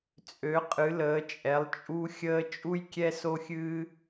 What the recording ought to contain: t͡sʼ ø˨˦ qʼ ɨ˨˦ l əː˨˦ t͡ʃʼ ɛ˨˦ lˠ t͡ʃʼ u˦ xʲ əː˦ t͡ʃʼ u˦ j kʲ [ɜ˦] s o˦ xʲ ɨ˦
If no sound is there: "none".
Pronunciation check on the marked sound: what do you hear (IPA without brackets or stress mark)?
ɛ˦